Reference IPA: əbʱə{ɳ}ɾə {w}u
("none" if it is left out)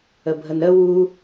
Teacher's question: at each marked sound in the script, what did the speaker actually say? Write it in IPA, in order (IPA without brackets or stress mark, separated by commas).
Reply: n, w